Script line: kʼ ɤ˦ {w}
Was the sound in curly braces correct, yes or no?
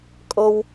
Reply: yes